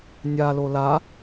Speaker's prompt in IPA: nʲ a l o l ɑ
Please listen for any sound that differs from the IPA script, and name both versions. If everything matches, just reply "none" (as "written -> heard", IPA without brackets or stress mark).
ɑ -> a